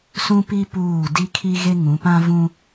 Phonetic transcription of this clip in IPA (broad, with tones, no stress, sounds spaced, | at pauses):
s ũ˦ p i˦ p uː˦˨ d i˦ kʰ i˦ ɣ e˦ ŋ ũ˨˦ p ã˦ v ũ˦